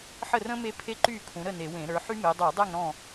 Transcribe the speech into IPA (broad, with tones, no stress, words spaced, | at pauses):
ħə˥˨rə̃˥ me˥pʰe˥ǃy˥˨ kʰũ˨˦ɾə˥˨ ne˧˩˧wẽ˧˩˧ɾə˞˨˦ħy˥ me˨˦dˤu˧˩˧dˤæ˥˨ŋ ɾɔ̃˥˨